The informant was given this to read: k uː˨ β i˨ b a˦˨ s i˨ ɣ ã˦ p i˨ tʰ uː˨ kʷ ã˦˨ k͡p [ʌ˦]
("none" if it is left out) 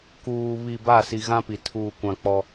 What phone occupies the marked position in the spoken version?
ɔ˦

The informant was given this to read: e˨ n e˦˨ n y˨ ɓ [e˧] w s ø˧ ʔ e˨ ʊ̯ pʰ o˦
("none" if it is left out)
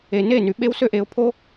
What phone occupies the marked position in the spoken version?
e˧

